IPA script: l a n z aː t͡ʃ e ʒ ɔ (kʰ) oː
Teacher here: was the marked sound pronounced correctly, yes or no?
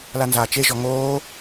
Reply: no